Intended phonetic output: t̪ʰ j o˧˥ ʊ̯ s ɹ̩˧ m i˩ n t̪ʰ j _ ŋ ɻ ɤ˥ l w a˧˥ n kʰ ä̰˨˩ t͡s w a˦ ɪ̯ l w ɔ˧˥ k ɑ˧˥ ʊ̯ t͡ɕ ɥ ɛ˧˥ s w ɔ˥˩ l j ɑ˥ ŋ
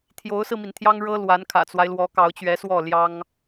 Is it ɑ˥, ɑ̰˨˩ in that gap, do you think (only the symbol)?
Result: ɑ˥